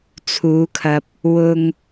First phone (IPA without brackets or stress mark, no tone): t͡sʰ